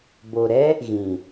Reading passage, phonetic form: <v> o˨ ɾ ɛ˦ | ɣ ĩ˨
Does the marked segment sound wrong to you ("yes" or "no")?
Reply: yes